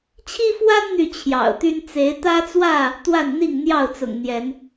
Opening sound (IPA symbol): t͡ɕʰ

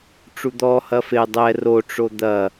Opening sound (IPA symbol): ʈ͡ʂ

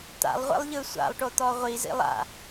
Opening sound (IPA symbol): t̪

